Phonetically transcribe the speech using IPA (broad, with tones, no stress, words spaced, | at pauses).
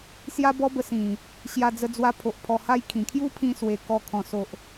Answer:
sja˦bɔ˦bə˧sĩ˨˩ | ɕja˧d͡zə˧d͡zwa˧ pʰo˨ʔ pʰɔ˧ha˦jkʰĩ˨˩ kʰju˦pʰĩ˧swe˨˩ kɔ˨˩ kʰɔ̃˨˩so˨ʔ